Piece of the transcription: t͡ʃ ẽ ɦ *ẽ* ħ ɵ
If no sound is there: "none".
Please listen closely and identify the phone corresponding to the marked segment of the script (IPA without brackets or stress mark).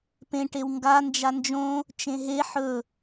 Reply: e